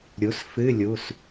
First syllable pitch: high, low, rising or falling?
rising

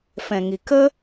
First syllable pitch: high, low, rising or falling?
low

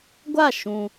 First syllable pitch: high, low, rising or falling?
falling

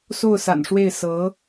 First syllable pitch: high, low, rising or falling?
falling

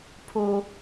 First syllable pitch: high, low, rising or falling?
low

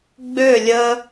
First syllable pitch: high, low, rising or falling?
falling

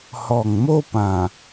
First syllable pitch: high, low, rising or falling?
low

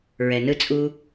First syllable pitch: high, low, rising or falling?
low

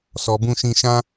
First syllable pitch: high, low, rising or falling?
low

